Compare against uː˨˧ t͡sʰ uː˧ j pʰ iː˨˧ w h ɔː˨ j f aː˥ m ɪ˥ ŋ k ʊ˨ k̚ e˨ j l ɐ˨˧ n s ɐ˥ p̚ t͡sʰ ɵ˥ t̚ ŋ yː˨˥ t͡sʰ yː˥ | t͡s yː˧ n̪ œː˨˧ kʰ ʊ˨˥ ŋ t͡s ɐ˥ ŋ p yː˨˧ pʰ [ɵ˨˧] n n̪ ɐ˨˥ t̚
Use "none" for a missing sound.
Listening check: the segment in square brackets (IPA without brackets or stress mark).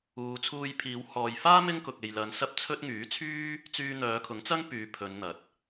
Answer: ɵ˨˧